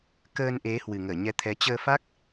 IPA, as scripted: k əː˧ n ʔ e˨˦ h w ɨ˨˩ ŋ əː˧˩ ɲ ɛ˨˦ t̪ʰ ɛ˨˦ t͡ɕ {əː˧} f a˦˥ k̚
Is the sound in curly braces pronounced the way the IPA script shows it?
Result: yes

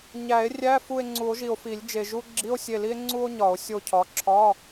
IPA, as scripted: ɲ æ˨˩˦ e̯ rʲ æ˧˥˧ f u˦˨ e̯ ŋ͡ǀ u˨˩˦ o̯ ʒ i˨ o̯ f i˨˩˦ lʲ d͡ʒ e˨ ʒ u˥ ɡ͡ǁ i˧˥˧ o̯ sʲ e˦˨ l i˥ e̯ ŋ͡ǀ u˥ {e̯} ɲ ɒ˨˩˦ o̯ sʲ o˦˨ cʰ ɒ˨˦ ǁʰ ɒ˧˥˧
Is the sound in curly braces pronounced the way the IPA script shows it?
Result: no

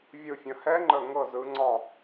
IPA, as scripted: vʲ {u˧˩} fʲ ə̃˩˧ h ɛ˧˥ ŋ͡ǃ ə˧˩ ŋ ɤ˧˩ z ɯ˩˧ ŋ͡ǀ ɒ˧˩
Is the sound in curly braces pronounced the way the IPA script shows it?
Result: no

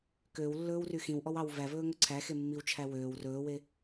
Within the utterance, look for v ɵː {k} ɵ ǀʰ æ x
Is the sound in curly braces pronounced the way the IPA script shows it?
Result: no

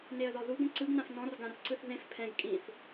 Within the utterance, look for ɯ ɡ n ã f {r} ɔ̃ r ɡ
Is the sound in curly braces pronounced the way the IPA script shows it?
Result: no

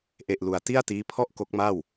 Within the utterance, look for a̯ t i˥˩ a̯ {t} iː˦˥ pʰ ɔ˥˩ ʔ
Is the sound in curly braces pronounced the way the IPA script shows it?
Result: yes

